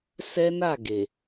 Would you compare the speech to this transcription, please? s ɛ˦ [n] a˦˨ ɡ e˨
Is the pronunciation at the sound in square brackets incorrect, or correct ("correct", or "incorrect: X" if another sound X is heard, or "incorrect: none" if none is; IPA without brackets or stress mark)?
correct